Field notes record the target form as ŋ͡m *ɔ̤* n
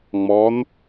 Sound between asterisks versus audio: incorrect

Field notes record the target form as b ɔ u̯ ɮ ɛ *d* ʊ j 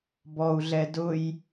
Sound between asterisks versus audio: correct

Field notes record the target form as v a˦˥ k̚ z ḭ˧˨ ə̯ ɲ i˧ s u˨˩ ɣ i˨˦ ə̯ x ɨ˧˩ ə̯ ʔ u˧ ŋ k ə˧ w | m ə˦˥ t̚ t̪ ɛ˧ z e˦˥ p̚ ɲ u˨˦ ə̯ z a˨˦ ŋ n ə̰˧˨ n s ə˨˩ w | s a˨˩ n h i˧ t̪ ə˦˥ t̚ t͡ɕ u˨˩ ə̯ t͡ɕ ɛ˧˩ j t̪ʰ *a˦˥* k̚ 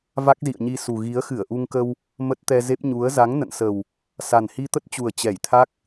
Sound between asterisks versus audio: correct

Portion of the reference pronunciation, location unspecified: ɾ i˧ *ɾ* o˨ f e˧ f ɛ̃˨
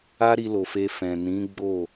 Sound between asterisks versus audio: incorrect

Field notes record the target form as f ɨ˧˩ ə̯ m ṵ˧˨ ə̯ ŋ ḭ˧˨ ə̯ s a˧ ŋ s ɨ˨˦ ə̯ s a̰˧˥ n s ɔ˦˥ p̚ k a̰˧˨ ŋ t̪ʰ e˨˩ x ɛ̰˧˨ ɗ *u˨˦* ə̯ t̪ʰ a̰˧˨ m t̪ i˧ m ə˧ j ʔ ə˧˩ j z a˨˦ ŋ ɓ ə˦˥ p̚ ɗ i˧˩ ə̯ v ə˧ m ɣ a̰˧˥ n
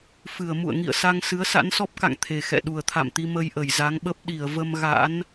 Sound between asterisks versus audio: incorrect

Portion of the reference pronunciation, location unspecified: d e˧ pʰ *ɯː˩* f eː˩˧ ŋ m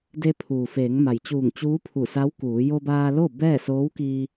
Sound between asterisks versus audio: incorrect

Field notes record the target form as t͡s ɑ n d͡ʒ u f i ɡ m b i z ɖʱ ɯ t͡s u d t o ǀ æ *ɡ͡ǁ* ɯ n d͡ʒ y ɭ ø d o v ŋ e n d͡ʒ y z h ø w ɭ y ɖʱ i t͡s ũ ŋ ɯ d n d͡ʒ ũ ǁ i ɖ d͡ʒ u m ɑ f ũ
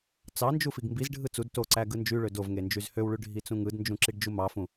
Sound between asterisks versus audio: incorrect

